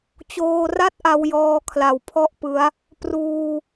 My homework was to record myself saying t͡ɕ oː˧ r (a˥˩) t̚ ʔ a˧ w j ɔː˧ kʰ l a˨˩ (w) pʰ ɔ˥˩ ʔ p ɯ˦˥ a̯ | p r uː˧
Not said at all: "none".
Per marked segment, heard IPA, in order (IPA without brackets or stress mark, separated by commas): a˥˩, w